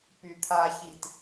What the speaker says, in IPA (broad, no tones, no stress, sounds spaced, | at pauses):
p y t̪ʰ a ç i t